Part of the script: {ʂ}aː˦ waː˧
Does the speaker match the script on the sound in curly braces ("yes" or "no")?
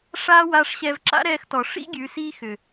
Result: yes